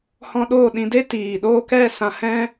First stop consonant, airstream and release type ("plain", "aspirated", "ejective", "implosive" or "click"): implosive